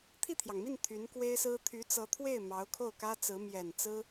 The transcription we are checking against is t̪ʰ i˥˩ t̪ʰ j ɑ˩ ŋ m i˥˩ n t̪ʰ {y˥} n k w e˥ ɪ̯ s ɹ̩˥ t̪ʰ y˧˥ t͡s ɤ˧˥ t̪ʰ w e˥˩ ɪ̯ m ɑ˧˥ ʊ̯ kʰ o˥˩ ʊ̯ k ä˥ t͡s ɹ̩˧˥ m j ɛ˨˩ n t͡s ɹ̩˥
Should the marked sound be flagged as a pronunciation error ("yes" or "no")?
yes